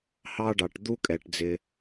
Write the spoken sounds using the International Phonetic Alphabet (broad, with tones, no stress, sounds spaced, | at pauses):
h ɑ˥ ɖ ɑ˩ ʈ d̪ u˥ kʼ ɛ˩ ʈ d͡z ɪ˩